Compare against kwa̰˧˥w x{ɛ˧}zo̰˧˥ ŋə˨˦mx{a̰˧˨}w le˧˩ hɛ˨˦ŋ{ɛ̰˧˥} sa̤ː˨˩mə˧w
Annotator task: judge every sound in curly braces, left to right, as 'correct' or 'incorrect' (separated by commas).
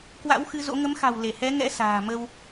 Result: incorrect, incorrect, correct